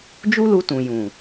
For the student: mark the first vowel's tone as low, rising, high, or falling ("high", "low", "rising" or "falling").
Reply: high